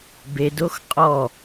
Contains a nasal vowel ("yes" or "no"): no